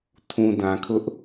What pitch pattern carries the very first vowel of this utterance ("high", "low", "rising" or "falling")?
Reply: low